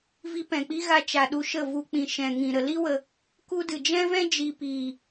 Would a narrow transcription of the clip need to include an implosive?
yes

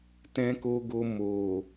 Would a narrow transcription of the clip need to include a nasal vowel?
yes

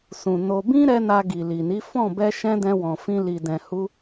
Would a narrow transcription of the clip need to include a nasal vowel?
yes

